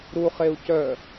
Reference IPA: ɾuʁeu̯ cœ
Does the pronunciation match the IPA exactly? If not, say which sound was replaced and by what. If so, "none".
ʁ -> χ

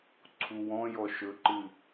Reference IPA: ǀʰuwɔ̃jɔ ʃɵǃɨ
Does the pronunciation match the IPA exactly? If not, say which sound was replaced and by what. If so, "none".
none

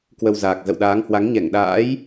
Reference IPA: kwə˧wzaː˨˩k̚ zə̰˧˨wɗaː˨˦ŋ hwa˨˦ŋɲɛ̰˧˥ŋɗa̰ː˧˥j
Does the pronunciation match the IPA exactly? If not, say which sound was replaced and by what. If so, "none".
ɛ̰˧˥ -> ɛ˧˩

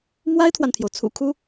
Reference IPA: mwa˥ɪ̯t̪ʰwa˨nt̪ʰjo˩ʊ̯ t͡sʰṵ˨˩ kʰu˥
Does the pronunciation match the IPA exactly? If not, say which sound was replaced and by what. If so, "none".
none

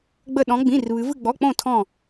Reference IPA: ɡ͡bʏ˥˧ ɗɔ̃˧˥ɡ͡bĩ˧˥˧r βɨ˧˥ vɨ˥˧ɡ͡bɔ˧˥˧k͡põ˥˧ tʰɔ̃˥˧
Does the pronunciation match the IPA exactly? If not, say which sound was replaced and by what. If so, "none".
ʏ˥˧ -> ə˥˧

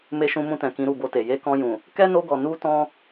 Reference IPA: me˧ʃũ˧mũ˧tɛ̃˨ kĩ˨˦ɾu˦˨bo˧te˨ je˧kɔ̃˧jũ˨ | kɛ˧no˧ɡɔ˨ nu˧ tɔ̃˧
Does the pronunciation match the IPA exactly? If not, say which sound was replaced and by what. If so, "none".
ɛ˧ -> ɛ˦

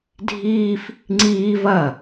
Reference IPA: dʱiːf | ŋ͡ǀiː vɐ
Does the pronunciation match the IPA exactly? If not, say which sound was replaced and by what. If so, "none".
none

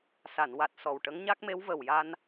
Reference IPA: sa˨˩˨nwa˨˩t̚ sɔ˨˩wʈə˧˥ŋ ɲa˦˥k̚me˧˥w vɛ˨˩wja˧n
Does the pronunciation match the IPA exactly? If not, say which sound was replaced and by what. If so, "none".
ɛ˨˩ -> ə˨˩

